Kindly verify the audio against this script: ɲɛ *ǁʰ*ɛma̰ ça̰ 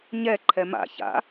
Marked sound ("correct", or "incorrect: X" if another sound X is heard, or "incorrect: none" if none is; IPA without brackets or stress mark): incorrect: ǃʰ